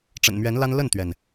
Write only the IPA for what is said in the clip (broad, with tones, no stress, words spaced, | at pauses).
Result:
ʈ͡ʂə̰˨˩nmɥɛ˧˥nla˥n lə˥˩nt̪ɥɛ˩n